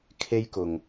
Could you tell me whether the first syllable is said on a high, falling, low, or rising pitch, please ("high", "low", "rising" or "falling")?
high